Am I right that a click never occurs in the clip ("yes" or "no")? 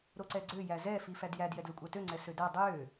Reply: no